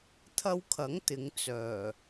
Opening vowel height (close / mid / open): open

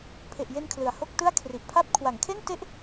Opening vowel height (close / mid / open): mid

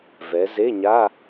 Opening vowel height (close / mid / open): mid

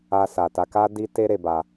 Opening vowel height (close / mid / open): open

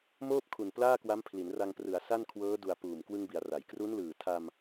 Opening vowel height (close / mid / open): mid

